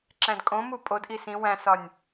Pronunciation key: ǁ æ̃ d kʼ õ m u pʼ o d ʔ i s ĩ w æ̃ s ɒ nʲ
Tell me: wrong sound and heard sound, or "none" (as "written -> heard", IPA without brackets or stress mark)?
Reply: none